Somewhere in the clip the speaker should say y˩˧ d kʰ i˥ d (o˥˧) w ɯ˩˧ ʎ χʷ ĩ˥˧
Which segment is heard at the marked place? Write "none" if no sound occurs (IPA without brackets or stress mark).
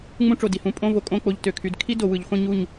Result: o˩˧